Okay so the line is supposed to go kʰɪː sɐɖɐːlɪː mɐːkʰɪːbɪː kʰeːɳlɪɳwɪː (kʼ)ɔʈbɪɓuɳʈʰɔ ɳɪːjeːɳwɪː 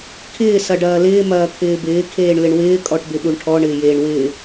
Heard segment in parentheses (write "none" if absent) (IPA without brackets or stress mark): kʼ